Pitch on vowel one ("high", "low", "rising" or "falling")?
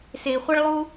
low